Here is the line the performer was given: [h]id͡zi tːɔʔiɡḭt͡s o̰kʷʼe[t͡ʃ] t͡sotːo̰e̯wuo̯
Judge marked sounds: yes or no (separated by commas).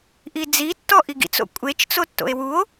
no, yes